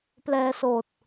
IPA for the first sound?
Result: p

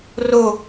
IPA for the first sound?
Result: r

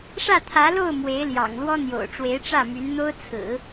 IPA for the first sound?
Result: ʂ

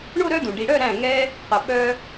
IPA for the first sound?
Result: ɳ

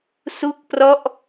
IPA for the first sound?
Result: s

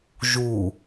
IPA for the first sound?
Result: ʒ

